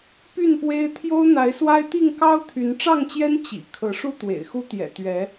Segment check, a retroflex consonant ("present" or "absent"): present